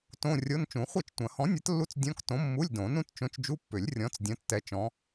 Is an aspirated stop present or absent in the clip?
absent